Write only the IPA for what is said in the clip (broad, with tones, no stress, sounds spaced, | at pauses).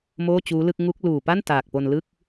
m oː˥˩ t͡ɕ uː˦˥ l ɯ˥˩ k̚ ŋ u˦˥ k̚ l uː˨˩ p a˥˩ n t aː˨˩ k̚ p o˧ n l ɯ˥˩ k̚